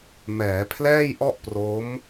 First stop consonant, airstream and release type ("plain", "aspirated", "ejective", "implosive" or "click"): aspirated